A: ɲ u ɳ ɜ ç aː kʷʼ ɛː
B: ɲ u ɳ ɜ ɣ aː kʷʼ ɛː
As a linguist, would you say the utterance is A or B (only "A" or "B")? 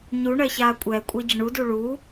A